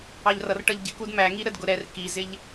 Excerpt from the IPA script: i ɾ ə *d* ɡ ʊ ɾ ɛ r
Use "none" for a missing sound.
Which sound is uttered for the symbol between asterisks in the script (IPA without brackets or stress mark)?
d